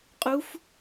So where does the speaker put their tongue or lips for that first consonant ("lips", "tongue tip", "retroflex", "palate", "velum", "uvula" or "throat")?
uvula